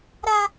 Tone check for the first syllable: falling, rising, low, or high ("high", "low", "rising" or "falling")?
high